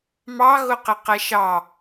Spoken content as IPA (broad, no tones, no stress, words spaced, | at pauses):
mɑɣʊqɪ qɛʃɑ